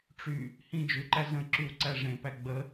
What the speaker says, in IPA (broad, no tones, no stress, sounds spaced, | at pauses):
ʈ͡ʂ y | h ĩ d͡ʒ ʉ ǃ æ z ə̃ ǁ y w ǀ æ ʐ ẽ p æ ɡ͡b ə